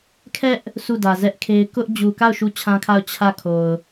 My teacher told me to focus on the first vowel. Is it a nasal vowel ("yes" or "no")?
no